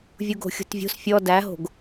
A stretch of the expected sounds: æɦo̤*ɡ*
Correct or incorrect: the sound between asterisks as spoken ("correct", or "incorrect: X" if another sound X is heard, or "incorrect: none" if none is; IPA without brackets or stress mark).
correct